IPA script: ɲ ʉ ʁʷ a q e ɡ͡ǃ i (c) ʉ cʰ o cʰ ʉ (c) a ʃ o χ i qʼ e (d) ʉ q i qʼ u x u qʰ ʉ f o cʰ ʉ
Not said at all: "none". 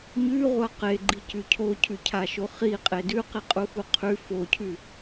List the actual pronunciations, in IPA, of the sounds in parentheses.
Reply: c, cʰ, d

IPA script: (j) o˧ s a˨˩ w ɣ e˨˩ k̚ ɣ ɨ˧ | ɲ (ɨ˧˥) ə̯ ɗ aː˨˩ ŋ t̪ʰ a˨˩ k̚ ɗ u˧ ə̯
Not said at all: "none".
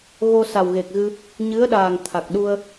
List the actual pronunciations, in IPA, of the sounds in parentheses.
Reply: ɣ, ɨ˧˥

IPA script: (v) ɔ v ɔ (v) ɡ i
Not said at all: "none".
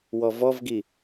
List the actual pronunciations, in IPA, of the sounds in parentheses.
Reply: w, v

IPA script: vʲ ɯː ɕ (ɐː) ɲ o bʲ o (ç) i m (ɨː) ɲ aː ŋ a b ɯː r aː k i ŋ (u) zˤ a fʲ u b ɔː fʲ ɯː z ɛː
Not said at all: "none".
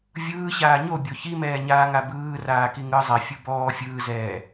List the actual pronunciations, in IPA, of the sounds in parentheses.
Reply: aː, ç, ɛː, ɯ

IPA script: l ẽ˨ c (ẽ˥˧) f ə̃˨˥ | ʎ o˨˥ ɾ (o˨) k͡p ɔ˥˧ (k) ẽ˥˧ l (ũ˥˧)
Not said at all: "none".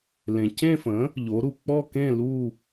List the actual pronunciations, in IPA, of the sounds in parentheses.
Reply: ẽ˥˧, u˨, k, u˥˧

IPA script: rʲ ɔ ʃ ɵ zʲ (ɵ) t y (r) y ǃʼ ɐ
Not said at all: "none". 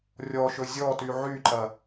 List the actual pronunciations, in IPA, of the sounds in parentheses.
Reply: ɔ, ʕ

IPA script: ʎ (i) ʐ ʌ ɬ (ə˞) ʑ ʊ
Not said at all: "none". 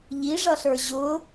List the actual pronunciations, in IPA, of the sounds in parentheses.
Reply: i, ə˞

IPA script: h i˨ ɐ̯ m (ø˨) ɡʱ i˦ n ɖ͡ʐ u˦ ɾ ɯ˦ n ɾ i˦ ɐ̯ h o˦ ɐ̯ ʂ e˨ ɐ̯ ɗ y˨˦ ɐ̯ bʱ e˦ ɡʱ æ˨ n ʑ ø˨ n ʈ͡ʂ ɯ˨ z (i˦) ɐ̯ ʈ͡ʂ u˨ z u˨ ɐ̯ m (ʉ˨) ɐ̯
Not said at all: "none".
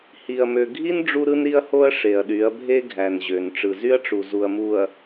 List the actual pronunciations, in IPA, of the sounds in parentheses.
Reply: ø˨, y˦, u˨

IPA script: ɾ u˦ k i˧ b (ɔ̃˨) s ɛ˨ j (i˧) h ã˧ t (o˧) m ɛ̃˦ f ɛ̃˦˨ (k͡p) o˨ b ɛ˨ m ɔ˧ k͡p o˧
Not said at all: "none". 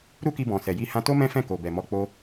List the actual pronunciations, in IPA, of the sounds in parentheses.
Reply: ɔ̃˨, i˧, o˦, k

